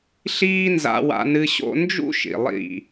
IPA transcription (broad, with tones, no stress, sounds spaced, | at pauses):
ɬ iː˦ n z a̰˧ w a̰˧ n ɨ˧ ɕ o̰˦ n d͡ʒ ṵ˦ ʃ ḭ˨ lˠ ḭ˦˨